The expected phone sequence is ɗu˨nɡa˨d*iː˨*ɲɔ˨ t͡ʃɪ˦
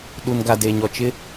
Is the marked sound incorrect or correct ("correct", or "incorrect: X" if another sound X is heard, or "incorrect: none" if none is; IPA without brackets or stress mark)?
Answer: incorrect: eː˨